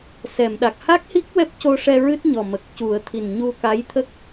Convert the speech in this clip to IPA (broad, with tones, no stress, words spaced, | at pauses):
sɛ˨˩˨mɗa˨˩k̚ ha˦˥k̚hi˦˥k̚ wɛ˦˥p̚co˧ʂɛ˧ ɹɨ˦˥t̚ɲɔ˨˩ mə˨˩k̚cu˨˩˦ə̯ t̪ʰi˨˩nɲu˧ka˧˥jt̪ʰə˦˥k̚